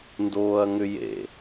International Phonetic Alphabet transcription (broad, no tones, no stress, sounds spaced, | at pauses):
n d oː ɐ̯ ŋ ʏ j ḛ